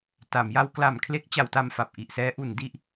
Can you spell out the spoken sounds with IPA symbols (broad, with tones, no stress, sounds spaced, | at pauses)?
t a˩˦ m j a˧ w k l a˨˩ m kʰ l e˦˥ k̚ t͡ɕ a˩˦ w t a˧ m f a˨˩ p̚ ʔ i˨˩ ʔ s ɛː˦˥ ʔ u˩˦ n d i˨˩ ʔ